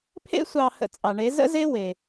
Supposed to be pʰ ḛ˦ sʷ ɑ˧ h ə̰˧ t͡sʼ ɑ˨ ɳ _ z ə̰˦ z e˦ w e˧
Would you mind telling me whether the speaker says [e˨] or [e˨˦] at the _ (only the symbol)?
e˨˦